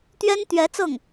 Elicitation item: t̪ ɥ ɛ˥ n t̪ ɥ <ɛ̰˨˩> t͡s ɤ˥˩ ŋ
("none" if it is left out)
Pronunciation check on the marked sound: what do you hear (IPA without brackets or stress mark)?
ɛ˧˥